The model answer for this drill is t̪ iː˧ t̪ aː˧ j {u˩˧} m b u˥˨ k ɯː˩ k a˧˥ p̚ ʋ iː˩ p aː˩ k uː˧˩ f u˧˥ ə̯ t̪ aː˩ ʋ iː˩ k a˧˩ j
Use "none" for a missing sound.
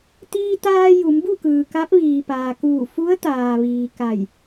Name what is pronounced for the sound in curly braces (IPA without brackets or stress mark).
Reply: u˩˧